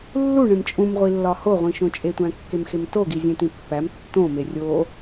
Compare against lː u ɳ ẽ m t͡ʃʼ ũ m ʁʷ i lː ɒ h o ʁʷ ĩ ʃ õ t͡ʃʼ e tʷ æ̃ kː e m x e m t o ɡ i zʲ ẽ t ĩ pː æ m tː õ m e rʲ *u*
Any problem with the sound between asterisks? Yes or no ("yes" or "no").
yes